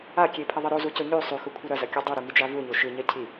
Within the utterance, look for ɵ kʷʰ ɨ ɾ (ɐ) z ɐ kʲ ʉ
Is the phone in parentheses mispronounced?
no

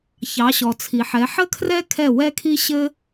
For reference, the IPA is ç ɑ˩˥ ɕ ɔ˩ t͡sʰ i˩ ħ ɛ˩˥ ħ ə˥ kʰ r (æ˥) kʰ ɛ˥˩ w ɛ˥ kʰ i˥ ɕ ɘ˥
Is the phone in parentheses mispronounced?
yes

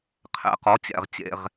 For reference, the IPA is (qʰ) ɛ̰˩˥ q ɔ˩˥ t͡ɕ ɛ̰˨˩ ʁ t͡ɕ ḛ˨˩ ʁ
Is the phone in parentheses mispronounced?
no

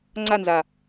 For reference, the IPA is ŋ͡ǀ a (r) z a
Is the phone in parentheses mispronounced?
yes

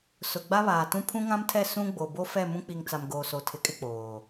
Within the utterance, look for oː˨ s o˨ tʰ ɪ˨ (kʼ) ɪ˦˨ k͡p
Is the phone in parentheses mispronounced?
no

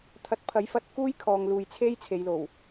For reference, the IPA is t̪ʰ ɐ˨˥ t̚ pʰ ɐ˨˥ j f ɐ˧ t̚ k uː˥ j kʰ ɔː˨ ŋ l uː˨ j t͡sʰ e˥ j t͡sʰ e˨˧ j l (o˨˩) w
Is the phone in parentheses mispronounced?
no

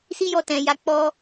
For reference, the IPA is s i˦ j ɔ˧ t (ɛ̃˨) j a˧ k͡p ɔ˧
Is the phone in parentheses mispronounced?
no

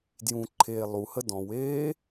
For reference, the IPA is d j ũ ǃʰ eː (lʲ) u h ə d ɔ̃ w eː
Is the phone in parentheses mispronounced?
yes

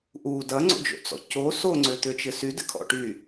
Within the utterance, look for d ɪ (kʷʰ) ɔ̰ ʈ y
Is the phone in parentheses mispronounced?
yes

